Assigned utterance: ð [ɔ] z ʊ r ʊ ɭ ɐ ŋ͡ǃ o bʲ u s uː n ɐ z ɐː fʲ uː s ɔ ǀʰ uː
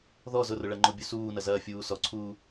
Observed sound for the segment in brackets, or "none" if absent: ɔ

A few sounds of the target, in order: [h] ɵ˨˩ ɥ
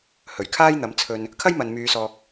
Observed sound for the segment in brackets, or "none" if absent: h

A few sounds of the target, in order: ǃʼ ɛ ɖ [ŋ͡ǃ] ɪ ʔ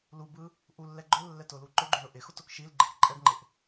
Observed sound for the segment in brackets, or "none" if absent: ŋ͡ǃ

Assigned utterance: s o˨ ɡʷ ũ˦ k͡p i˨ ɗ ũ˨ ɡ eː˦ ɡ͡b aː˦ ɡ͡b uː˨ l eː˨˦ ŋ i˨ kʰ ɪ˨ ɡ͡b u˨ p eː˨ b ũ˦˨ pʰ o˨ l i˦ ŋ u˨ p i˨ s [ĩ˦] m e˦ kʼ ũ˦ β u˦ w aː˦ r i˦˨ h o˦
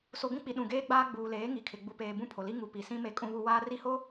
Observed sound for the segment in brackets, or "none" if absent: ĩ˦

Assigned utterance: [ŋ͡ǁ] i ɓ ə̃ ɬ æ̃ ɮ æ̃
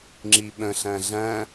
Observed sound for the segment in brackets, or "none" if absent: ŋ͡ǁ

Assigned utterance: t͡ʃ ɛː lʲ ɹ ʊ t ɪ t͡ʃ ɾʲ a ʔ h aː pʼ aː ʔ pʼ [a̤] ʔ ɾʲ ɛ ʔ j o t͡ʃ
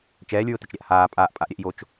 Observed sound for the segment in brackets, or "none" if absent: a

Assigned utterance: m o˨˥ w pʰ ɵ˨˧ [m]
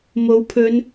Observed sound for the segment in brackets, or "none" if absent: n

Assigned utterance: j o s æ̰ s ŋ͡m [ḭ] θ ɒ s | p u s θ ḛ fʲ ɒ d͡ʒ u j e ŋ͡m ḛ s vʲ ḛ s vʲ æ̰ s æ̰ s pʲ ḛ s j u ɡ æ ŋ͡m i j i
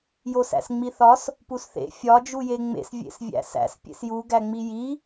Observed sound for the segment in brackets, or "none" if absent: i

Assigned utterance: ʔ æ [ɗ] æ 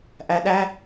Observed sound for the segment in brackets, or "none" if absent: ɗ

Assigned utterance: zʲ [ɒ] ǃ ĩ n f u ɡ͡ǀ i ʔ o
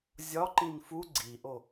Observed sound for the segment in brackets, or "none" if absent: ɒ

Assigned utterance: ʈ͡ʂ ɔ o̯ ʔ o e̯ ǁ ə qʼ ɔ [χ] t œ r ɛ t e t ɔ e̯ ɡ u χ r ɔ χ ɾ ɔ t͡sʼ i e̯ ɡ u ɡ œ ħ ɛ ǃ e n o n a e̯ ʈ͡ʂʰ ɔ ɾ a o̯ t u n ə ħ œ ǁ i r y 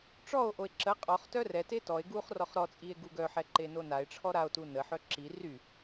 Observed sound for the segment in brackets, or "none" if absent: χ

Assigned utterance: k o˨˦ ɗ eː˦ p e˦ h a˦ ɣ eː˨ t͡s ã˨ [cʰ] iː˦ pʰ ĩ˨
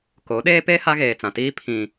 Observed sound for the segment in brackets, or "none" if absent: t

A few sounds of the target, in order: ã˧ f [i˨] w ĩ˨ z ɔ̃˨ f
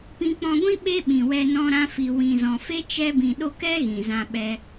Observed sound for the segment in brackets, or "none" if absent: i˨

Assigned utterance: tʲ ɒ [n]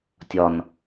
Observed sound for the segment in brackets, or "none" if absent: n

